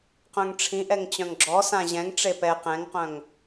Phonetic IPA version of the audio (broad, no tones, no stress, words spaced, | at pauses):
qœ̃ŋʈ͡ʂʰĩʔɛŋ t͡ɕœ̃ŋɡ͡ǁɔsã ʑɛ̃ŋʈ͡ʂe pɛ qɛ̃ŋqœ̃ŋ